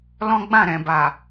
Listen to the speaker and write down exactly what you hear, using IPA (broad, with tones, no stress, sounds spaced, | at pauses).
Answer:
l ɔ̃˦ ɡ͡b ã˦˨ ɾ ɛ̃˨ b a˨